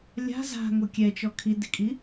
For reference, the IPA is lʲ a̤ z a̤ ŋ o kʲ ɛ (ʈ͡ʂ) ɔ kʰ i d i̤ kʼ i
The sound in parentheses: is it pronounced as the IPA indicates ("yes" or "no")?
no